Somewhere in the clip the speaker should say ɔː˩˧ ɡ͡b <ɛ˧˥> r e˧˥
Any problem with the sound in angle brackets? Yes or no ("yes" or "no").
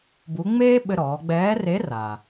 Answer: yes